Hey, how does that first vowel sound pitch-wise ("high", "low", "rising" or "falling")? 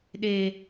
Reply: low